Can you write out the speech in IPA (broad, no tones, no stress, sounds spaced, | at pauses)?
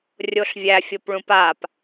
rʲ o ɬ vʲ æ fʲ o p ɭ ũ p a p